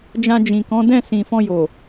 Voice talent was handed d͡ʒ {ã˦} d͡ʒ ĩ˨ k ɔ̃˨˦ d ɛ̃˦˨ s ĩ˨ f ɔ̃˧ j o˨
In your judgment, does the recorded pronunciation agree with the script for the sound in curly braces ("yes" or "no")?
no